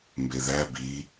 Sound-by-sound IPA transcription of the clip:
m b e ð æ b i

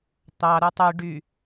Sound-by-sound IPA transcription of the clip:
t̪ ɑ ɾ u tˤ y ɖ y

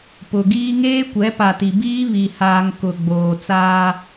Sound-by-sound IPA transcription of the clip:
p ʊ˨ ɡ iː˦ ŋ eː˦ kʷ ɛ˨˦ p a˨ t i˨ b iː˦ β i˨ h aː˨ ŋ k ʊ˨ ɡ͡b oː˨ t͡s aː˦

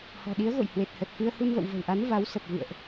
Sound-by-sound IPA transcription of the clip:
h ɔ̤˨˩ ɗ i˨˦ ə̯ ɣ o̰˧˨ j h w e˨˩ t̚ h ə˨˩ t̚ f ɨ˧ ə̯ h u˧ n v ə̰˧˨ w v ə̤˨˩ w ʔ a˨˦ n v a˨˦ w s ə˨˩ p̚ v ɨ̰˧˨ ə̯ ʔ

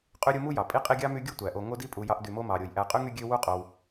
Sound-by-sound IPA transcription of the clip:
qʼ y˦ ɾʲ u˦ m u˥ j ɑ˩ pʼ i˥ qʼ i˦ ɡʲ ɑ˥ m y˦ ɡʲ u˥ tʷ æ˩ ʔ o˨ ŋ o˦ d i˦ pʼ u˨ j ɑ˦ ʔ d y˨ m o˥ m ɑ˩ ɾʲ o˩ j ʔ æ˨ qʼ y˥ ŋ y˦ ɡʲ ø˦ w u˥ qʼ o˨ w

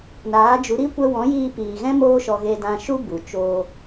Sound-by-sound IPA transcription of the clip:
n aː˨˦ d͡ʒ u˨˦ ɾ i˦ kʷ ɛ˧ w ɔ̃˨˦ j iː˧ p iː˨ ɣ ɛ̃˦ m oː˦ ʃ ɔ˧ ɣ e˧ d ã˧ ʃ u˦ b u˨ t͡ʃ oː˧

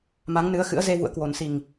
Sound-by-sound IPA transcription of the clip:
m a˨˦ ŋ n ɨ˨˦ ə̯ x ɨ̰˧˥ ə̯ z e˧ v ṵ˧˨ ə̯ k w o˨˩ n s i˨˩ ŋ

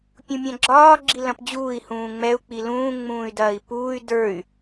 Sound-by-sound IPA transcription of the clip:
pʲ ũ mʲ ɐ̃ ɡ͡ǁ ɒː ɡ͡ǁ i l ɐ̃ p d͡ʑ uː i̯ h ũː ŋ͡m ɛ u̯ k͡p i l ũː ŋ͡m ũː y̯ d ɐː i̯ p uː y̯ d ə˞ y̯

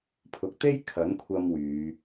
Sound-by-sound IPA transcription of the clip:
pʰ ʊ˨ k̚ t̪ e˥ j kʰ ɐ˨˥ n kʷʰ ɐ˧ m w yː˨˧

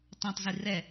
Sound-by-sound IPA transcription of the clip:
tˤ õ tˤ z i r ɛ

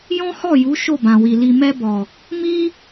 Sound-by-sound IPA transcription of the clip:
j ɔ̃˦ h ɔ˦˨ j u˨˦ ʃ o˦˨ b ã˨ w i˨ l i˨ m ɛ˧ b ɔ˨ | m i˦

